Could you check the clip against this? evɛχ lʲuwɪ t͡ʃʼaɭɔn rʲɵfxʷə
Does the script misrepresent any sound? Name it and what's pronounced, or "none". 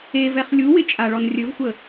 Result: f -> v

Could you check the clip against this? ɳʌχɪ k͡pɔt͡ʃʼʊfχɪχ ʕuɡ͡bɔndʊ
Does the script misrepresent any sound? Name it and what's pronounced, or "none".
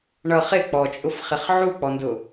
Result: ɡ͡b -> k͡p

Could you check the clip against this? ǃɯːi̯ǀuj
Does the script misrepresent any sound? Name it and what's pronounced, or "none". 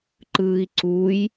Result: none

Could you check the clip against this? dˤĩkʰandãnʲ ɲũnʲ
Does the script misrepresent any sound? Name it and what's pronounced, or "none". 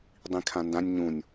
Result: a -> ã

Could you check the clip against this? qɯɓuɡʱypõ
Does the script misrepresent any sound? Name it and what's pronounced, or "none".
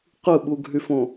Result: p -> f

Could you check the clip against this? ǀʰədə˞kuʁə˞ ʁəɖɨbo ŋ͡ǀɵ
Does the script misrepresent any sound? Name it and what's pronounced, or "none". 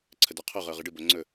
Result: k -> qʰ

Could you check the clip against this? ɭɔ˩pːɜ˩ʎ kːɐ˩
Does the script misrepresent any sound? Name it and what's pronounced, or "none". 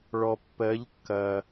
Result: ɜ˩ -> ɜ˩˧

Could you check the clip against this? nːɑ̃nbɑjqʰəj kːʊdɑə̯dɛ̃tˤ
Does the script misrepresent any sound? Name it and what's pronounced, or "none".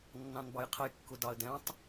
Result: none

